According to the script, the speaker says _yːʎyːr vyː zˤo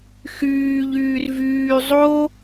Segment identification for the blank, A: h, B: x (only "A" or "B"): B